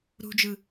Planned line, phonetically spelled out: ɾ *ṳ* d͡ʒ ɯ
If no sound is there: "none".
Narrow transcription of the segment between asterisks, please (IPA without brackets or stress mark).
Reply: ṳ